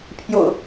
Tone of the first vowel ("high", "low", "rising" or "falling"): low